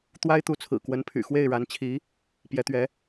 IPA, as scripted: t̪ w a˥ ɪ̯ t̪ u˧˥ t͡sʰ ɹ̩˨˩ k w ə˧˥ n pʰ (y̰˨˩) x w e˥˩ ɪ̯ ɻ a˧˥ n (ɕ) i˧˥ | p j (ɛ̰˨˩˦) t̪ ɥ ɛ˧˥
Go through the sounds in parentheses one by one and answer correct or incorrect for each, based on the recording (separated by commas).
correct, incorrect, incorrect